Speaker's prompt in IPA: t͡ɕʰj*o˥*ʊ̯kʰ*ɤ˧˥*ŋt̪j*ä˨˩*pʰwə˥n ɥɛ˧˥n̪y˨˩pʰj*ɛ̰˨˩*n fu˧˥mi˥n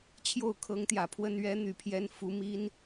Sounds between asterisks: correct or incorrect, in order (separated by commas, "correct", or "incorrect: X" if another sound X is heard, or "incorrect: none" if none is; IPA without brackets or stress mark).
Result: incorrect: o˥˩, correct, correct, incorrect: ɛ˧˥